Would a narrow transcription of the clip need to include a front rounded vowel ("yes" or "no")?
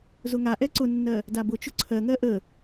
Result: no